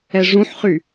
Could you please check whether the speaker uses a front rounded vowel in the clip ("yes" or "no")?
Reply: yes